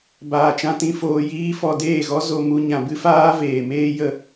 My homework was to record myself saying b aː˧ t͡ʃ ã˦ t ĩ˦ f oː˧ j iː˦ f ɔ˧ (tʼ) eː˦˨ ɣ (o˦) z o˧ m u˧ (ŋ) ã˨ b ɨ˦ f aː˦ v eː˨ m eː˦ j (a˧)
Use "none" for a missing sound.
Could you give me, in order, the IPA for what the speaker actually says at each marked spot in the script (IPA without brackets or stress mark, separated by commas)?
d, ɔ˦, ɲ, ə˧